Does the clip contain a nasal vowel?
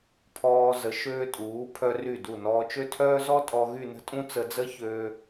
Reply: yes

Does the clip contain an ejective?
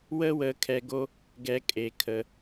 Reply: yes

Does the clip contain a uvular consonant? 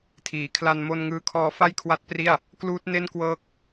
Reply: no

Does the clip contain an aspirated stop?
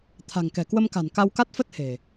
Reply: yes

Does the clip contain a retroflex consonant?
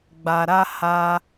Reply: no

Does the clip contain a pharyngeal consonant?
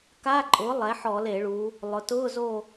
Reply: yes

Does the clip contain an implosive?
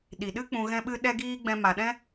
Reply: yes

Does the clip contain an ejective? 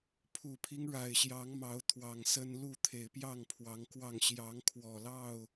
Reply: no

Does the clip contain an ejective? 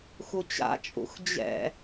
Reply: yes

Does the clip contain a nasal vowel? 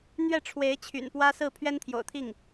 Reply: no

